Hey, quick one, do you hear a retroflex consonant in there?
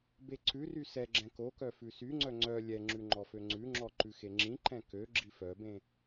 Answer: no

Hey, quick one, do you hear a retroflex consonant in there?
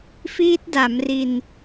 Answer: no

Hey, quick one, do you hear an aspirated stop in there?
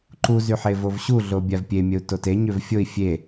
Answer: no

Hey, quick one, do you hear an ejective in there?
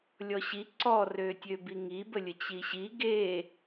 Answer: no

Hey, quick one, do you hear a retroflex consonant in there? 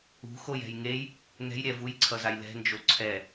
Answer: no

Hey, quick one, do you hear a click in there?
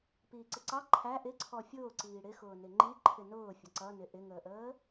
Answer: yes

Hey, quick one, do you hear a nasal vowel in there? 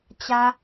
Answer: no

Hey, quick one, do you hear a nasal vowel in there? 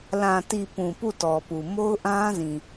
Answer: yes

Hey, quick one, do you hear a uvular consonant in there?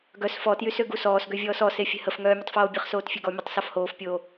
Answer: yes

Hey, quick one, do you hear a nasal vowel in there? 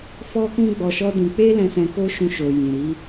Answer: yes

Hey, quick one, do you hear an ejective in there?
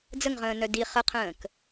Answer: no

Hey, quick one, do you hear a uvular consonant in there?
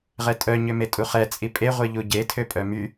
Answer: yes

